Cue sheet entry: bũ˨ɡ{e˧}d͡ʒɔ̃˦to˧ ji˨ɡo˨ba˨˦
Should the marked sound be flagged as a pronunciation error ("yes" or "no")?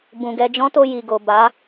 yes